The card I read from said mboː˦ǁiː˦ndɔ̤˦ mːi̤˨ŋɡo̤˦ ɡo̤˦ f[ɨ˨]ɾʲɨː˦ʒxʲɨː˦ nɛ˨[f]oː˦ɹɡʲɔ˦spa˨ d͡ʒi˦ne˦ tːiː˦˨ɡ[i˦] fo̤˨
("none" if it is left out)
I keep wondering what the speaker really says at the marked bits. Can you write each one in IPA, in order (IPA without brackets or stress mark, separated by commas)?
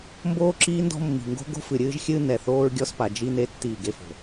ɨ˨, θ, e˦